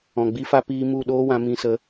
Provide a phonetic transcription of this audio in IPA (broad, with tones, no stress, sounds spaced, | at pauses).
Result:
ɔ̃˨ ɡ͡b i˧ f a˧ p iː˧ m u˦˨ ɗ oː˦ w ã˧ m ĩ˧ s ə˧